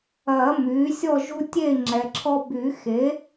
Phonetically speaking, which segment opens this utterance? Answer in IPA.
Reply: ɐː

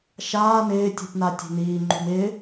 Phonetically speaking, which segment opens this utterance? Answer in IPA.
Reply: ʃ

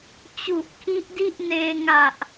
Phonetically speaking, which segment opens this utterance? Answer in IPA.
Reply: t͡ɕ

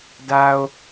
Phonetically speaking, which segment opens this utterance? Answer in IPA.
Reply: d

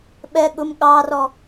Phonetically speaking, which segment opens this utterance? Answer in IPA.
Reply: ɓ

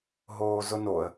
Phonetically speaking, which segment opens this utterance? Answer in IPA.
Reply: ɦ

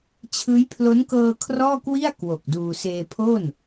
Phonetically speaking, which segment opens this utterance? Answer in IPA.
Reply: t͡ɕʰ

